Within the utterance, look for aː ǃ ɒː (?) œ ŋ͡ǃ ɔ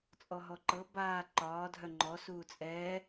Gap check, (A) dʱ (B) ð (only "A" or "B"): A